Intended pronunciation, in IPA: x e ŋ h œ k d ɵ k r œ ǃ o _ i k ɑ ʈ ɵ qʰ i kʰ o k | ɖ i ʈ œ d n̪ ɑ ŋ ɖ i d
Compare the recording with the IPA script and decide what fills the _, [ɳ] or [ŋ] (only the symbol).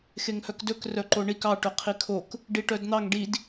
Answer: ɳ